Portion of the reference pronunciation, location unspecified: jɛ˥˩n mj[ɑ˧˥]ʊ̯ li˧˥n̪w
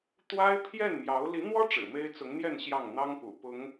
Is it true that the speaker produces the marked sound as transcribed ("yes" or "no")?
yes